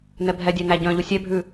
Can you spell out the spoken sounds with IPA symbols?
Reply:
n ɛ bʱ ɛ dʲ æ n æ ɟ œ̃ ʎ u sʲ ɛ bʱ ʉ

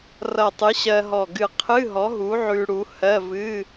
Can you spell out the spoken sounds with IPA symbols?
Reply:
r ʌ˧˩ tˤ ɨ˨˥ ɕ ɜ˧ ɦ ɔ˧˩ ɡ ɨ˧˩ qʰ ɨ˧˥˧ ɦ ɔ˨˥ ɦ u˨˥ ʕ ʉ˧ ɽ u˨˥ h ɜ˧˥˧ v ɨ˧˥˧

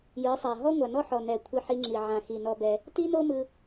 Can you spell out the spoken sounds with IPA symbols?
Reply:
j ɯ˨˦ sˤ a˨ ɦ ɔ˦ ŋʷ a˨ n ɔ˦ ħ ɔ˨ n ɛ˨ kʷʰ i˧ ħ i˧ ŋ͡ǁ i˨ ʕ ã˨ x i˨ n ɔ˧ b ɛ˧ | t i˦ n o˦ m ɯ˧

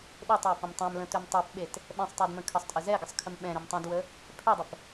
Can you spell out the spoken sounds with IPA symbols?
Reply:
ɗ e tˤ w ə p ə̃ m tˤ ɛ̃ m l ə̃ t ø m tˤ ø p ɓ e t | ɓ ɛ̃ sˤ tˤ ø d m ə̃ kʰ ə sˤ tʼ ə z ɛ ɡ ə sˤ kʰ ə m ɓ ɛ̃ ɾ ʏ m tˤ ɛ̃ d w ə | pʰ ɛ dˤ ə p

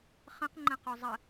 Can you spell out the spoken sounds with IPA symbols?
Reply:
χ ə̃ q ŋ͡ǃ ə̃ q u zˤ ə

